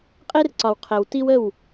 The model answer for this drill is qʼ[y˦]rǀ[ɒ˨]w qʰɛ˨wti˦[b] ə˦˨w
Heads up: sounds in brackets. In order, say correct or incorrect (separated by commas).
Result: incorrect, correct, incorrect